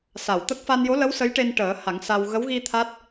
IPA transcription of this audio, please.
s a˨˩˨ w t̪ ə˦˥ k̚ f a˧ n j o˧˥ l ə˧˥ w s ə˧˥ j ʈ e˧ n ʈ əː˨˩˦ h a˨˩˦ ŋ s a˧ w ɣ ə˧˥ w ɣ i˧ t̪ʰ a˦˥ t̚

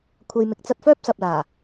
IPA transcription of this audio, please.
kʷʰ ɐ˧ j m ɪ˨˥ k̚ t͡s ɐ˧ t̚ f œː˥ p̚ s ɐ˨ p̚ l aː˨˩

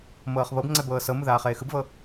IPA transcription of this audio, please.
m ɤː χ β ɤ b ŋ͡ǀ ɛ b ɤː s ɤ m ɯ ð aː χ eː x ɯ b v ɤ

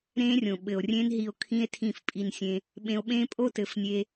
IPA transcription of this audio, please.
ɾ ẽː˦ rʲ õ˨ ɓ ɘ˨ o̯ rʲ ẽ˦ n ɦ i˧ o̯ kʰ ĩ˦ e̯ tʰ ĩ˦˨ f pʼ i˧ n sʲ ẽ˧ | ɓ ẽ˧ o̯ ɓ ẽː˦ pʼ o˦ t ɘ˨˦ f nʲ e˧

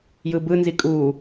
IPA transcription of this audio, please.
j ɯ b ɯ n z i kʼ u

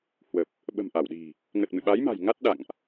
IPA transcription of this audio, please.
h w ə˨˩ p̚ | ɓ ə̤˨˩ m ʔ a˧˩ w ɗ i̤˨˩ | ŋ ə˨˩ t̚ m ɨ̰˧˨ ɓ a˨˦ j m a̤˨˩ j ŋ a˦˥ t̚ ɗ a̰˧˨ ŋ ʔ

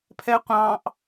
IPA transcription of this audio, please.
pʰ ɛ qʷ ɑ̃ ʔ

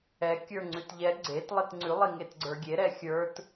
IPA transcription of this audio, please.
ɛ kʲ ə˞ ŋ͡ǀ ʉ t ʎ ɛ ɡ͡ǀ e t lˠ i t ŋ͡ǀ ʉ lˠ i ŋ e t ɡ͡ǀ ə˞ ɡʲ e ɾ ɛ xʲ ə˞ t

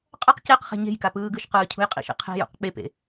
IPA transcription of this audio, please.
qʼ ʌ q c e q χ e̤ ɲ e̤ j k a p ɯː ɡ ɯ ʃ q ɯː cʰ ṳ j qʼ ḭ ʃ ḭ qʰ e̤ j ṵ q k͡p e p ḛ

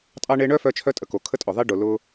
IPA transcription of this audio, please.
tʼ ɑ˦ ɳ e˦ ɳ œ˦ f œ˦ t͡ʃʰ œ˦ tʼ ə˨ k o˨ kʰ ə˦ tʼ ʊ˨ ðˤ e˦ ɖ ʊ˨ l ʊ˦

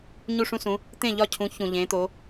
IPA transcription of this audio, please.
ɲ u˦˨ ʂ ũ˦ s ũ˨˦ | t̪ ẽ˦˨ ʎ ɒ˦˨ cʰ ũ˨˦ ç ũ˨ ʎ ẽ˨˦ t̪ o˨˦

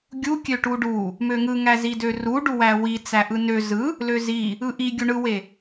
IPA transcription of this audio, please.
ɡʲ u kʲ ø ʈ u ɖ u | m ø ŋ ɯ ŋ æ z i d ø r u ɖ u w æ w i t͡s æ ʔ ɯ n ø z ɯ | l ø z i | ɯ ʔ i ɡʲ u ɳ ɯ w e

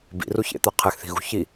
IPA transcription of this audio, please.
b ḭ r u ç ḛ t̪ a qʰ ɛ x θ i̤ ɣ ṳ ç i

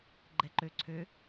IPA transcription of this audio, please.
ɡ͡ǃ ɛ ǃ ø ǀʰ ø

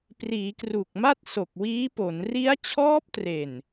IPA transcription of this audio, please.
p r iː˩˦ k r u˨˩ k̚ m a˥˩ t̚ s o˨˩ k̚ w iː˦˥ p o˩˦ n r i˦˥ a̯ t͡ɕʰ ɔː˦˥ p̚ t r e˨˩ n

